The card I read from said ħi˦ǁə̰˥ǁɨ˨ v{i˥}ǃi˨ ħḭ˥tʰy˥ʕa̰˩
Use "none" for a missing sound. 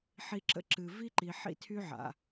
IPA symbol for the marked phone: i˥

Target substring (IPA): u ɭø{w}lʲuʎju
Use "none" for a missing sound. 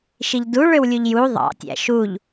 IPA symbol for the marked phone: w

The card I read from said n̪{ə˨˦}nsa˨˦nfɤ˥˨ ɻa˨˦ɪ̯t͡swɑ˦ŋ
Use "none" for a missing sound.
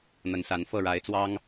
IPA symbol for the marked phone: ə˨˦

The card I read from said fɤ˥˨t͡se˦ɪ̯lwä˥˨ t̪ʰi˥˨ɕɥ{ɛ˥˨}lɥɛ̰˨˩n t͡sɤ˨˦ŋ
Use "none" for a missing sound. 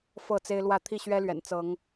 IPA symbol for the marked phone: ɛ˦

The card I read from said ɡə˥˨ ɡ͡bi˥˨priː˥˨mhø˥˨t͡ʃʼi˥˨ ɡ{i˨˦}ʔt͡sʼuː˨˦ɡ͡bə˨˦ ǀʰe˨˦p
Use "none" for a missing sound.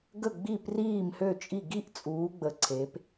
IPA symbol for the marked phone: i˥˨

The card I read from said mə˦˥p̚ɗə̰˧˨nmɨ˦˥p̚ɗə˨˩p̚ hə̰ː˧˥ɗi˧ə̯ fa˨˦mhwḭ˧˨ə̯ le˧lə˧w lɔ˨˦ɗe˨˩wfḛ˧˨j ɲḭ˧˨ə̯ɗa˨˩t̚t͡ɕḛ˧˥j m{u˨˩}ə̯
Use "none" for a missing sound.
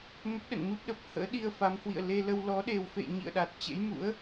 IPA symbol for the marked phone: ṵ˧˥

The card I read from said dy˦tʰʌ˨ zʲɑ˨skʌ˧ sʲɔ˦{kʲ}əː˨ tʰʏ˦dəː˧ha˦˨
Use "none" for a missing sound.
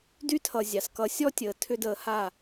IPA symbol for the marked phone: tʲ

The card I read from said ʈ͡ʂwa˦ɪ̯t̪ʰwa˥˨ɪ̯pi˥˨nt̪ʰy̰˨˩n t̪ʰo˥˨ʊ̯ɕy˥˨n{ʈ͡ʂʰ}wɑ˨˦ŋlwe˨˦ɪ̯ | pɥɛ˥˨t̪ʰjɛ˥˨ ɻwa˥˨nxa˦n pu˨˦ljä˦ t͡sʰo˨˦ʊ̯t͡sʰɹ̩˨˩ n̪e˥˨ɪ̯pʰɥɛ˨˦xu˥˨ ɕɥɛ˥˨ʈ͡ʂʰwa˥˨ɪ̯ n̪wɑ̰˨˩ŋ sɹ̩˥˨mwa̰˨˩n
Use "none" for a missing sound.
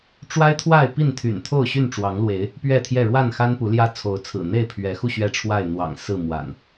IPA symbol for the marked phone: ʈ͡ʂ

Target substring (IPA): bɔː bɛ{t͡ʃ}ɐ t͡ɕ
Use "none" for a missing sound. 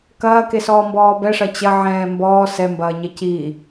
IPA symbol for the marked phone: ʂ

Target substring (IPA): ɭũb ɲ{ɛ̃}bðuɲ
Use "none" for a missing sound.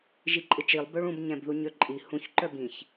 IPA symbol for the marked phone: ɛ̃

